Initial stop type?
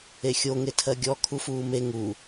aspirated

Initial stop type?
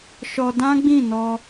plain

